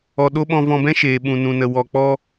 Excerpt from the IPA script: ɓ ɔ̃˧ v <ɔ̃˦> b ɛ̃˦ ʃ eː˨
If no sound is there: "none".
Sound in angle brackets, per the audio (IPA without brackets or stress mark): ɔ̃˧